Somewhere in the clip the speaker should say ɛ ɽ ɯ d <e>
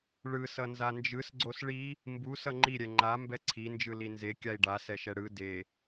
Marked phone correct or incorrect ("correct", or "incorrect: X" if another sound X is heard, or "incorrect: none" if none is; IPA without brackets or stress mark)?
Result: correct